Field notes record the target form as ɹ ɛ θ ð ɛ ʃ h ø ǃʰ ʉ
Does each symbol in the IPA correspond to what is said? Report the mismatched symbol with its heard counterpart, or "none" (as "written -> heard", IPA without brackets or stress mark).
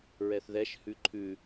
ø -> ʉ